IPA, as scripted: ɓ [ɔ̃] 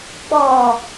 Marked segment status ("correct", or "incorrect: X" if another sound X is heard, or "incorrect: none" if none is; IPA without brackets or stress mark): incorrect: ɔ